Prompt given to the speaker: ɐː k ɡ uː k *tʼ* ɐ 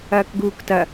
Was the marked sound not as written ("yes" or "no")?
yes